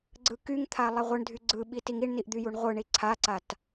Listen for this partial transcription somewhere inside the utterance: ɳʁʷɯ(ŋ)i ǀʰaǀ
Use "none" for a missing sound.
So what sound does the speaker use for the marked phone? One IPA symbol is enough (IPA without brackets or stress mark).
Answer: ɳ